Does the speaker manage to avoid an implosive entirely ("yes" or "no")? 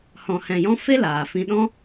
no